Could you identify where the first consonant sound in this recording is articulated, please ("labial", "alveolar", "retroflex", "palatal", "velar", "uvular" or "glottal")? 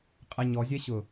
uvular